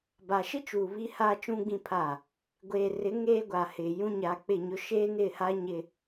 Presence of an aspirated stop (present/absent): present